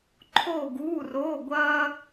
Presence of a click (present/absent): present